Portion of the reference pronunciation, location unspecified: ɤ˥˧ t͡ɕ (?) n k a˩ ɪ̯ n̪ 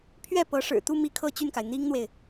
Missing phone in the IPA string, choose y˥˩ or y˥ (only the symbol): y˥˩